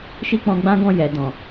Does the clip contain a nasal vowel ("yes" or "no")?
yes